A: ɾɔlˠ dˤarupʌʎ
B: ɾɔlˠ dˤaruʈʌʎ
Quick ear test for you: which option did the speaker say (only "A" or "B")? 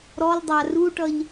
B